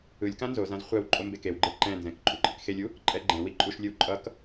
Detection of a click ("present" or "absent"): present